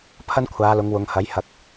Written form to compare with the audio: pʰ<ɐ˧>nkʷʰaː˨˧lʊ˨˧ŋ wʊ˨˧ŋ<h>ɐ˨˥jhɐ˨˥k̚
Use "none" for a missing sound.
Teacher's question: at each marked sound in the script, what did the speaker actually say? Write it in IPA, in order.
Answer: ɐ˥, h

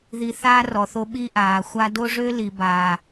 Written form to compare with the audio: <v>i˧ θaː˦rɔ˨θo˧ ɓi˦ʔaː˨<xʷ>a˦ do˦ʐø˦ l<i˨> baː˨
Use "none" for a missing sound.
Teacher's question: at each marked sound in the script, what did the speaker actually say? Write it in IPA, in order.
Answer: ð, xʷ, i˨

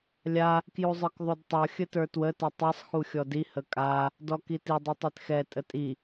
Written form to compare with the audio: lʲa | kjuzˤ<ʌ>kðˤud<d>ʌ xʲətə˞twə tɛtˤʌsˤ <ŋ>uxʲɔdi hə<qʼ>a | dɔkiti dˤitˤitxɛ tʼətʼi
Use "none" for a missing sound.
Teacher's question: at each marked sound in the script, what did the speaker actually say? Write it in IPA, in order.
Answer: ə˞, tˤ, x, kʼ

